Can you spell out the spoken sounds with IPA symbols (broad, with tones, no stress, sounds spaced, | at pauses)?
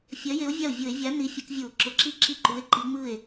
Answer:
fʲ ɜ˨˥ j e˨˥ o̯ vʲ a˥˩ o̯ vʲ ʊ˧˩˧ e̯ vʲ a˨˥ n i˨˥ fʲ ʊ˨˥ k vʲ u˧˩˧ o̯ ǁ ʊ˨˥ ǁ i˥˩ ǁ i˥˩ ǃ u˨˥ e̯ ǃ i˨˥ ŋ͡m ɯ˥˩ e̯